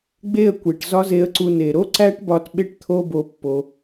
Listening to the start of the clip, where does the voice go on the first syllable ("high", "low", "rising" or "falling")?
falling